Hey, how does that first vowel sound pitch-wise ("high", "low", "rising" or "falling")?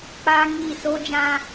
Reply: high